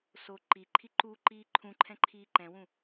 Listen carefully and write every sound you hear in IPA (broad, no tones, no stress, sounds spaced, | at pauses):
s o ǃ i ǃʰ i ǃ u ǃ iː ǃʰ ũ ǃʰ ɛ̃ ǃʰ iː ǃ ɛ̃ w ũ